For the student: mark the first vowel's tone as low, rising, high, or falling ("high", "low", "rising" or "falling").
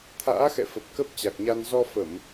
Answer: rising